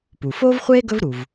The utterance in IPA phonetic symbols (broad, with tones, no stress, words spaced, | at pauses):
pu˩ foː˥vχʷeː˥ ɡɵ˥v ɾu˩v